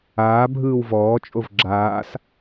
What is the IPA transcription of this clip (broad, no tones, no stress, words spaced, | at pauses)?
aː bʱɯːwvɔːt͡ʃʼov ɡ͡ǁaːs